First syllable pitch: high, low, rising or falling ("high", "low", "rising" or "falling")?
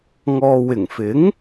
low